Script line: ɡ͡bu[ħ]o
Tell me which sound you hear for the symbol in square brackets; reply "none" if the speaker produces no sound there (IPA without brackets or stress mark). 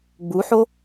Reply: ħ